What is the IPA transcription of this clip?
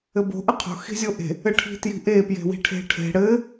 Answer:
ɘ b o̤ ʔ ɘ qʰ o̤ x i̤ zʲ o ʔ e̤ | ɘ ʈʰ i̤ t j i̤ ʔ e p j e̤ w i̤ ʈʰ e̤ ʈʰ e̤ ɽ ɘ

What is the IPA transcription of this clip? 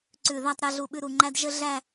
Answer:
ǀ ʉ˧˩ ð a˥˧ tˤ ɾ ɛ˧ ɮ u˧˩ ɓ ʉ˧ ɾ u˧ ŋ͡ǃ æ˥ d ʒ ə˥ ɮ æ˥˧

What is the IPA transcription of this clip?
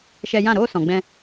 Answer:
ʃ ɛ˧ j ã˦˨ ɾ oː˦ s ɔ̃˨ ɡ͡b ɛ̃˧

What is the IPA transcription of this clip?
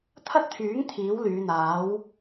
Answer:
t̪ʰ ɐ˥ t̚ t̪ʰ yː˨˥ ŋ t̪ʰ iː˨˥ w l yː˨˧ n̪ aː˨˥ w

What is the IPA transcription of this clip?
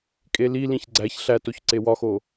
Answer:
kʼ e l i l ĩ ç ɡ͡ǀ æ ç ɬ æ t o ç ǀ e w ɒ x o

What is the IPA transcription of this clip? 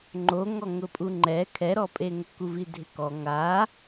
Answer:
ŋ͡ǃ o ŋ ɔ ŋ ʊ pʼ u ŋ͡ǃ ɛ kʰ ɛ ɾ ɔ pʼ e ŋ ʊ k u v i dʱ ɪ k ɔ ŋ a

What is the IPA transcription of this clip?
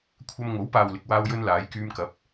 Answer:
kʷʰ ɐ˧ m ŋ o˨˥ w p aː˨ w l ɪ˨ k̚ w aː˧ w j ɵ˧ n l aː˨˧ j k yː˧ m k ɐ˨˥ p̚

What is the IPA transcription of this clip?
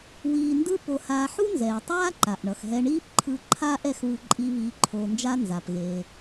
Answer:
w iː˧ n d ɯ˥ p o˧ h aː˧ ħ u˥ n z ɛː˩ tˤ aː˥ ǃ a˩ ʔ ɳ ʌ˩ x ɦ ɛ˧ ɳ iː˥ p ǃʰ ɯ˧ ǃʰ aː˥ ʔ ɛ˧ x β ɯ˧ ǃʼ i˧ β iː˧ ǃʰ oː˧ n d͡ʒ a˥ n z a˩ p ɣ e˩

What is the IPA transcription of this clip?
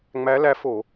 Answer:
ŋ͡m æ˧˥ l æ˧˥ f o˧˩˧

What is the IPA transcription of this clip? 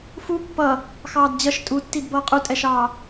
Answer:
f u pː ʌ | x ɑː d d͡ʑ ʌ ʃ tʼ u tː i d b ʌː qʼ u tʼ ɛ ʃ ɑː

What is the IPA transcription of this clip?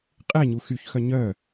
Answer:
qʼ e ɲ u x y ç x œ ɲ œ

